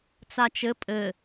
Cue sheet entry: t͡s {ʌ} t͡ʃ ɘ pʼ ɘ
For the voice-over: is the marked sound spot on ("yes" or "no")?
no